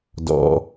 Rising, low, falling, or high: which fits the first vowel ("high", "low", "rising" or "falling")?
low